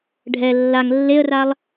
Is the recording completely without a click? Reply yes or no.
yes